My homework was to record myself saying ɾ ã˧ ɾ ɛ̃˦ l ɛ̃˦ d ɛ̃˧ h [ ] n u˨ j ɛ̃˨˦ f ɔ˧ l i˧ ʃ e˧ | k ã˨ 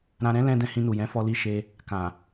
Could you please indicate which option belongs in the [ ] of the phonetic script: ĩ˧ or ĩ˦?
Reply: ĩ˧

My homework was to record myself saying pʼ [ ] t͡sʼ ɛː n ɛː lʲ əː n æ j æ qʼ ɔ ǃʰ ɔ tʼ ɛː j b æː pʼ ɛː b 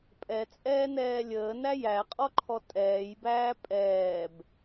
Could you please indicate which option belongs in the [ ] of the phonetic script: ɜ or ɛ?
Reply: ɛ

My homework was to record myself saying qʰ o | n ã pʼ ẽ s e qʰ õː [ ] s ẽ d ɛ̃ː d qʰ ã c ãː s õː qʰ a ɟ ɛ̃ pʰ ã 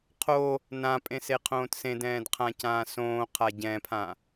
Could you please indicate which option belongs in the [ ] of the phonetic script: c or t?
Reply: t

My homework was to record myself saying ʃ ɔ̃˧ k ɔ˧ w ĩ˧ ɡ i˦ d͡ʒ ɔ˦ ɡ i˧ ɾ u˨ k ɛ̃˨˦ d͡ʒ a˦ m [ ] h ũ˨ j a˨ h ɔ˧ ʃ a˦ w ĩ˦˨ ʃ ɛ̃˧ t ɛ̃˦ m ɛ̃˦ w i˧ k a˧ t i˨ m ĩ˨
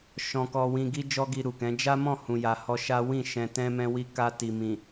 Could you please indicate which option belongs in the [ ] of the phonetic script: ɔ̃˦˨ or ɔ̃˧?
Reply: ɔ̃˦˨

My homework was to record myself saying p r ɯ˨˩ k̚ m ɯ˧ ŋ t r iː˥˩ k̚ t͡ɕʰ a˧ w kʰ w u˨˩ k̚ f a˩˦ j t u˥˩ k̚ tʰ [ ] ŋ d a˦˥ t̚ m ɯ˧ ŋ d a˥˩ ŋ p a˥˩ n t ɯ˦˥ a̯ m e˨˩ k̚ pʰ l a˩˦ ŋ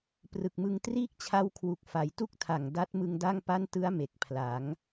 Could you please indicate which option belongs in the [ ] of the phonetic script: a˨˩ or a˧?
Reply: a˨˩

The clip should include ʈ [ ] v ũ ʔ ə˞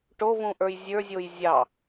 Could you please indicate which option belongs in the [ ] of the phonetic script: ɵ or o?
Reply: o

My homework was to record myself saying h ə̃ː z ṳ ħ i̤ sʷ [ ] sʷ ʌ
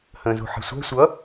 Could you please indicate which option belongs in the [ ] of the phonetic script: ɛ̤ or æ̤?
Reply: æ̤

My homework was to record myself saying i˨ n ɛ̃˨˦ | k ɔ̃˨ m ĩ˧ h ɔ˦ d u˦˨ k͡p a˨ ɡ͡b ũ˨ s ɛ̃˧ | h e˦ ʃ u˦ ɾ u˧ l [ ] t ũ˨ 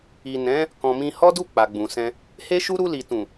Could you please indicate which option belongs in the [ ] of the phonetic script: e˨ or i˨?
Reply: i˨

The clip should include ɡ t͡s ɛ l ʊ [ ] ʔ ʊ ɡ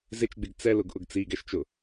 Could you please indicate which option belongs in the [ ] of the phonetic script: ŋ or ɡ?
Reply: ɡ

